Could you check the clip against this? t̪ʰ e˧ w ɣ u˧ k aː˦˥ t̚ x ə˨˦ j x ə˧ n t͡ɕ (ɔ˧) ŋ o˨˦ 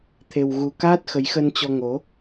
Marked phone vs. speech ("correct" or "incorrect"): correct